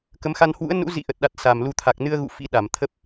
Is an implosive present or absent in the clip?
present